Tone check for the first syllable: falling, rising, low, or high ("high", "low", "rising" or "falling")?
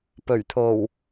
low